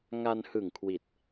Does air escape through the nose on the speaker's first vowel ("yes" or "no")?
no